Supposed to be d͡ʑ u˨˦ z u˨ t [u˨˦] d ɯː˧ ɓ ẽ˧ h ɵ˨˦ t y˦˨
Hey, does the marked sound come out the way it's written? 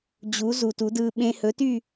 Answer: yes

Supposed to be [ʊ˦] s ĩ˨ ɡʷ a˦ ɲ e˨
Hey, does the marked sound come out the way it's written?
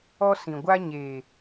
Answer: no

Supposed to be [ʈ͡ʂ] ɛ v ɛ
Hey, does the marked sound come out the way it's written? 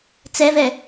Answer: no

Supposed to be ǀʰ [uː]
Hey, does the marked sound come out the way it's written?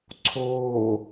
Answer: no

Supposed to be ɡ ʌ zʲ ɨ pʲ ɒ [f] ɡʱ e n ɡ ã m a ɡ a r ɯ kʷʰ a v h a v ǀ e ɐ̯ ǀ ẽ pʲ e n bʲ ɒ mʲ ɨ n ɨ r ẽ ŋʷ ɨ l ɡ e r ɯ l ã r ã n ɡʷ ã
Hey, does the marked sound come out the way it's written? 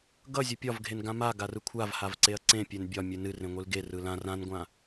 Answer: no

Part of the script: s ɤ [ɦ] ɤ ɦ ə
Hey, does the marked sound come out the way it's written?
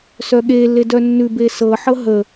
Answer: no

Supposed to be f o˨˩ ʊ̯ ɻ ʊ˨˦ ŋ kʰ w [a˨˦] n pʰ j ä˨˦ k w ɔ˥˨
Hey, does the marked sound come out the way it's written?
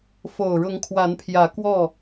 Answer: yes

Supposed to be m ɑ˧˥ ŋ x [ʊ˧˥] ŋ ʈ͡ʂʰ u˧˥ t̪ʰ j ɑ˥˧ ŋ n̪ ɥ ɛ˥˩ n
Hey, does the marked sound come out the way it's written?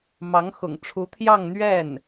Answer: no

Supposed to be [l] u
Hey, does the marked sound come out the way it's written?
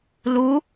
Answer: yes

